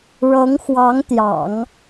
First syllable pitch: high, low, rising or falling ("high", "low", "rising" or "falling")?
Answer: rising